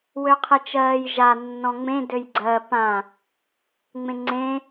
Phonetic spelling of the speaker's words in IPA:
w ø qʰ e t͡ʃ ɜː j ʒ a nː ɔ̃ ŋ͡m ẽ d ø j ɡ͡ǀ ɜ p ã | ŋ͡m ẽ ŋ͡ǀ ẽ

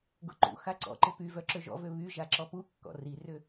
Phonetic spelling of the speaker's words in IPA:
ɡ ʊ ǃ ṵ x a ǀ ɔ̰ ǃ ɪ p y v œ ǁ ø ʒ ɔ̰ v ø β y ʒ a ǁ ɔ p u kː ɔ̰ r i r ʏ

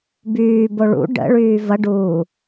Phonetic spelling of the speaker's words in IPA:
b yː b o ɭ ṵ ɖ ə̰ ɭ yː v ɐ ɖ uː

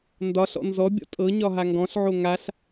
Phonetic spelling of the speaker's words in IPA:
n d ɒ ɬ ɔ̰ n z ɔ bʲ ɔ̰ tʼ ɤ ɲ ɒ ɦ a ŋ ɡ ɔ̃ ɬ ʕ o ŋ a ɬ

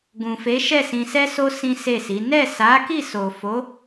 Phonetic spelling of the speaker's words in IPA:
ɡ ũ˨ f e˨˦ ʃ ɛ˦˨ s ĩ˧ s ɛ˦ s o˦ s ĩ˦ s e˦˨ s i˨˦ n ɛ˦˨ s a˨˦ k i˦˨ s o˨ f o˨˦

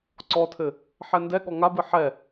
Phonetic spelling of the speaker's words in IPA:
ǀ ɔ tʰ ɘ | ħ ɛ n d ɛ ɠ ɔ ŋ a b ɨ ħ ɛ

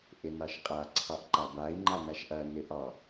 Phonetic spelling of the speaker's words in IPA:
ʔ ɪ n ɑ ʃ qʼ a ǀʰ ɑ ʔ ǃ a b a i̯ ŋ͡ǃ a n a ʃ ʔ ɐ n ɪ ʔ ɑ

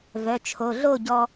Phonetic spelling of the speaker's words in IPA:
v œ˩˧˩ t͡ʃʰ o˩˧˩ ɮ o˥˨ ɟ ɔ˧

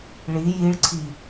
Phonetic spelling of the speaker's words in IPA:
ɭ i j i ɭ ǀʰ i

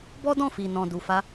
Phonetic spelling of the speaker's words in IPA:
b ɔ˦ d ɔ̃˦˨ f i˨ n ɔ̃˨ d u˨ f a˧

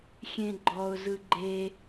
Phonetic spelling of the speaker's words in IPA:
xʲ ẽ ɡ͡ǃ ɔ ʊ̯ z ɯ ɡ͡ǃ e

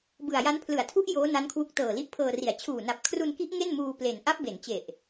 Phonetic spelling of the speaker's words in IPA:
b ɯ˨˩ a̯ j a˦˥ n pʰ l ɯ˩˦ a̯ tʰ u˦˥ ʔ j oː˦˥ n a˦˥ n kʰ w u˦˥ k̚ t ɤː˨˩ l i˦˥ ʔ pʰ ɤː˧ r i˨˩ a̯ t͡ɕʰ uː˨˩ n a˨˩ p̚ kʰ r u˧ n k i˦˥ ʔ ŋ e˥˩ n m uː˧ p l e˨˩ n ʔ a˦˥ p̚ b e˩˦ n t͡ɕ e˨˩ ʔ

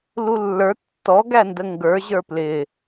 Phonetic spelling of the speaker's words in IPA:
l u lː ə˞ tː ɔ ɡ æ n d ə ŋ ɡ ə˞ ʑ ə˞ p l ɪ

